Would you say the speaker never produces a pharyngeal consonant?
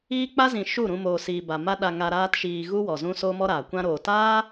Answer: yes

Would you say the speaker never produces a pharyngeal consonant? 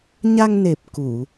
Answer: yes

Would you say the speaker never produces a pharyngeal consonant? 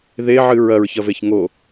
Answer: no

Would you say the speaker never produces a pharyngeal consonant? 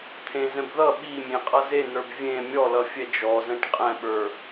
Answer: yes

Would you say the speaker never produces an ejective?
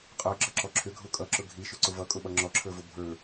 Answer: no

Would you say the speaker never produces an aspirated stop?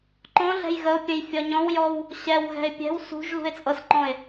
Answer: yes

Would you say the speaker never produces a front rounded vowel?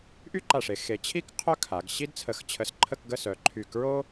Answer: no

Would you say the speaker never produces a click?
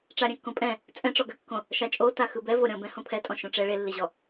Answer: yes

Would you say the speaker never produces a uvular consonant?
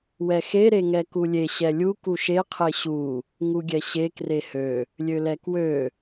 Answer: no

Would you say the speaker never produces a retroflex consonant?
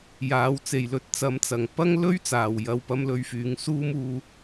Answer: yes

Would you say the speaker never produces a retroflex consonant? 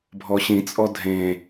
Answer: yes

